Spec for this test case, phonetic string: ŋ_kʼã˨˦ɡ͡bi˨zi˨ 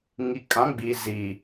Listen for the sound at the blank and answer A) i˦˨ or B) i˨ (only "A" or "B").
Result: B